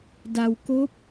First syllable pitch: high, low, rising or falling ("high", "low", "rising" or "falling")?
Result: low